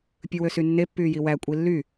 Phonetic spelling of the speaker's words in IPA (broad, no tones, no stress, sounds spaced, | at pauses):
pʲ ɯ w ø s y nː e pː yː j i w æ kʷʼ i lː y